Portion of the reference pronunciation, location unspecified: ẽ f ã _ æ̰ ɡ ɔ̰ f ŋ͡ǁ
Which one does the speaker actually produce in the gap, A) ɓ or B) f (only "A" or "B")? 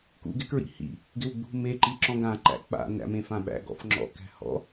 A